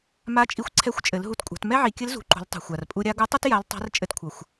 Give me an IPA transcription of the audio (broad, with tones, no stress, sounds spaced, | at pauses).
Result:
m a˧˥ t͡ʃʼ i˧ xʷ ǀʰ ɛ˧˥ xʷ t͡ʃʼ ɘ˩˧ l ɦ u˧ t kʷʼ a̤˩˧ t m ɛ˥ ʕ i˩˧ kʲ ɘ˧˥ l z ṳ˩˧ ǃ ṳ˩˧ l tˤ ṳ˩ xʷ a˩ r pʼ u˧ ɾʲ a˧˥ ɡ u˧˥ tˤ u˥ t j a˧˥ l tˤ a̤˧˥ r t͡ʃʼ ɘ˧ t kʷʰ ʌ˩ xʷ